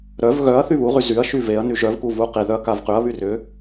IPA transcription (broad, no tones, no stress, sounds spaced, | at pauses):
ɾ œ v ɣ œ ɐ̯ θ y β u ʁ y z y ɐ̯ ʃ y v e ɐ̯ n y ʒ œ v k u v u q i ð œ ɐ̯ k a v q y ɐ̯ β y r ʏ